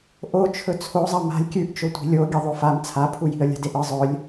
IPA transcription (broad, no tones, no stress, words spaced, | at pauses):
ʔot͡ʃʰɵ t͡sʰozˤɐ ma̤lʲ kʲʉʔt͡ʃo tʷi̤lʲo ɡʲɐðˤofam t͡sʰapʰuji̤ə̯ lʲa̤deʔɨ zˤɵlʲ